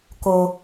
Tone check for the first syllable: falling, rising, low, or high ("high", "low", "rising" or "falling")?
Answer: high